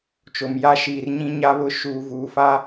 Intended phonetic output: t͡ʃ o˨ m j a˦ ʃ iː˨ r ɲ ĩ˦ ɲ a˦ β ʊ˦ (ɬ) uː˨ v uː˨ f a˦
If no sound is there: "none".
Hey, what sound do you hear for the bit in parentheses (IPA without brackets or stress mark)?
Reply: ʃ